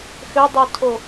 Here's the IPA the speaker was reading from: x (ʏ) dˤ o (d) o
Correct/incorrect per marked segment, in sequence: correct, incorrect

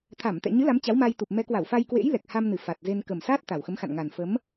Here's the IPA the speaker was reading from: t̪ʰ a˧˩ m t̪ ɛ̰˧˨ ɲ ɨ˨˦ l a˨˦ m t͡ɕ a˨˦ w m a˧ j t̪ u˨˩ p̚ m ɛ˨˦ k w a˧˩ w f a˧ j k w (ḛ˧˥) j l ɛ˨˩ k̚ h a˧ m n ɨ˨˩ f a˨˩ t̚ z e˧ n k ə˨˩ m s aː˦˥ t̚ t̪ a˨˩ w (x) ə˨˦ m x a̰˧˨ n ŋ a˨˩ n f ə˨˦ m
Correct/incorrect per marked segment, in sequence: correct, correct

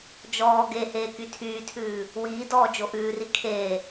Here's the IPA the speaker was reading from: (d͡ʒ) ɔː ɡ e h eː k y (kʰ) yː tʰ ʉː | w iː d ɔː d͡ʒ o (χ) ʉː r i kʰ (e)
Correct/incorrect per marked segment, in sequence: correct, incorrect, incorrect, incorrect

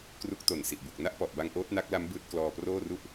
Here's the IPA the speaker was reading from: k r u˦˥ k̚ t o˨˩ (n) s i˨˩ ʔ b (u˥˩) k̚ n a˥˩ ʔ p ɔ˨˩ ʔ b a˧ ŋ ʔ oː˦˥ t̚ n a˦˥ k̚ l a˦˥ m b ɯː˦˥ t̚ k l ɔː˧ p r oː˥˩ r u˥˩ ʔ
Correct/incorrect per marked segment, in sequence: correct, incorrect

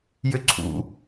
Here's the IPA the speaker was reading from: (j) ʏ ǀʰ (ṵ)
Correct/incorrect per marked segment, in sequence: correct, correct

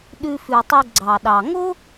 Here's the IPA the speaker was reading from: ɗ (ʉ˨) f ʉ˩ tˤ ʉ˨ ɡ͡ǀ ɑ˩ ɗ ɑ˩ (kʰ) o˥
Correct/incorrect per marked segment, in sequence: correct, incorrect

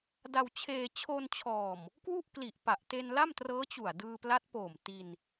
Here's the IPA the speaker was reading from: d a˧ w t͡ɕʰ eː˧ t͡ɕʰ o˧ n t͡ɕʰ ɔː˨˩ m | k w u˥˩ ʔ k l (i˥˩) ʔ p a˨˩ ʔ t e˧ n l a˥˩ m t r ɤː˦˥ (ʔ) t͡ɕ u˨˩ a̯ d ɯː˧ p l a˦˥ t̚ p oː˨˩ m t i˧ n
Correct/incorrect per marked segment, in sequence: incorrect, incorrect

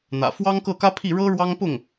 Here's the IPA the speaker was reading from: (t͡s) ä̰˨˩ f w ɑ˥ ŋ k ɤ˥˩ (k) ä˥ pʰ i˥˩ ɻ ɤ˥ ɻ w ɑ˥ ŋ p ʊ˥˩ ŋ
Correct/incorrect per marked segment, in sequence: incorrect, correct

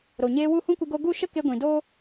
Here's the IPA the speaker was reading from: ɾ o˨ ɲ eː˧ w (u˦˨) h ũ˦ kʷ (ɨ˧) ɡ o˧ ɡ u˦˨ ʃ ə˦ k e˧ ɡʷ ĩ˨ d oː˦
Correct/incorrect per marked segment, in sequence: correct, correct

